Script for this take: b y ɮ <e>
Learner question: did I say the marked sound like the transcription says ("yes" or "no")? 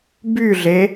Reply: yes